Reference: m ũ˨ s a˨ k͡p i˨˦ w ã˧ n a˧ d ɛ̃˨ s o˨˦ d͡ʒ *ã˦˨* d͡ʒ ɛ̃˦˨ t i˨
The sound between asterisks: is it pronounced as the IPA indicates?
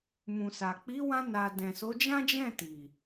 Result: no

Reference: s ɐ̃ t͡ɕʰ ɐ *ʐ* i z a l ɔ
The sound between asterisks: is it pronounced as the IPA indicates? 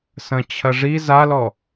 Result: yes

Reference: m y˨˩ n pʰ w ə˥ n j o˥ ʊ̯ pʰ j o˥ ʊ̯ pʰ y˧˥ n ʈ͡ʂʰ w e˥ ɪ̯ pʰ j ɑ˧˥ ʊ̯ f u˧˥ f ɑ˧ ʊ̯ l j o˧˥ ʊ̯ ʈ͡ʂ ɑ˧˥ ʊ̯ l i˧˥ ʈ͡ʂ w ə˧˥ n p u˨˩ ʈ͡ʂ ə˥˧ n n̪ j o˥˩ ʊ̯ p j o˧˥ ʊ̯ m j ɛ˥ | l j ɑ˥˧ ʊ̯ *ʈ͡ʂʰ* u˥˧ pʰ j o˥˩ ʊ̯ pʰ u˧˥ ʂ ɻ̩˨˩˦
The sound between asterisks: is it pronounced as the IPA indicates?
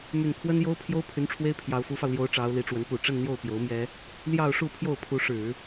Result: no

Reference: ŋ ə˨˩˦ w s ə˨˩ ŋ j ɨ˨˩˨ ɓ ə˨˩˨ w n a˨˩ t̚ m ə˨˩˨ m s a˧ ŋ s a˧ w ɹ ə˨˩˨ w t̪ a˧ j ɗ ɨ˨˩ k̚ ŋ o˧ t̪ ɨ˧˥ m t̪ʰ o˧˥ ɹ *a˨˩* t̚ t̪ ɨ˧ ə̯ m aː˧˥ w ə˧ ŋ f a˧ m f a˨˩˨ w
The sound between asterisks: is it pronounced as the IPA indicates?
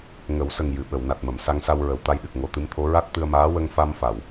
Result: no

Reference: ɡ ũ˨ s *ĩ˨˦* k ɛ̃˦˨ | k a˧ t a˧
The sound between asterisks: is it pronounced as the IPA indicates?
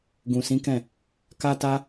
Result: yes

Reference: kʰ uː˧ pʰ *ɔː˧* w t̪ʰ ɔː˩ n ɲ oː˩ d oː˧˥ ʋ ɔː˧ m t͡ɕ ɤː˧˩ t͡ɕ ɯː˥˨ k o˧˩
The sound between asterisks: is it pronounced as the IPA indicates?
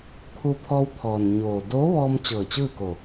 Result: yes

